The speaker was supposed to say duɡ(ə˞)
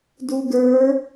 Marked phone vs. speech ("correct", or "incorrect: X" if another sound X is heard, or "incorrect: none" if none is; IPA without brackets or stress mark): correct